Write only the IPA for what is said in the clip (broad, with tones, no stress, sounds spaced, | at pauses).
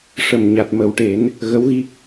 ʂ ə˨˩ m ɲ a˨˩ t̚ m ə˨˩˦ w ʈ e˨˩˦ n | ɣ ə˧˥ w ɣ i˦˥ k̚